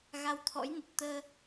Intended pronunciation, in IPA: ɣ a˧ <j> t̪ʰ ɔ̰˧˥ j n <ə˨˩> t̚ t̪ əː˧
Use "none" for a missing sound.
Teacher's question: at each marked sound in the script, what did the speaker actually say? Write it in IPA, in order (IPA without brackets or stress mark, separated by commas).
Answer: w, ə˨˩